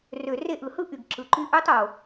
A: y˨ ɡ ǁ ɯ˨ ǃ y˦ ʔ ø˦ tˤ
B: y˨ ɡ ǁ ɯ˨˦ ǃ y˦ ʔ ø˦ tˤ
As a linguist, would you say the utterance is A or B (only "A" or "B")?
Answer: A